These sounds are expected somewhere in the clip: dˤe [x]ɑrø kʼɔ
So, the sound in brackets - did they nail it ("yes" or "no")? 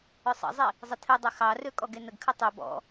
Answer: yes